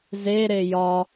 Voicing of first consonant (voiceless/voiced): voiced